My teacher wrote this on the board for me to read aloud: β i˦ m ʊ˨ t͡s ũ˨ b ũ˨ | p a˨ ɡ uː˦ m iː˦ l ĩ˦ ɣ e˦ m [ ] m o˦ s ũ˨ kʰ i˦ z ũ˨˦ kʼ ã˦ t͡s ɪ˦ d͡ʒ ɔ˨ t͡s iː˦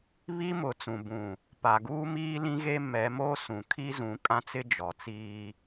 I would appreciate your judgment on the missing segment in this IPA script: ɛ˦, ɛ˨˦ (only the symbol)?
ɛ˨˦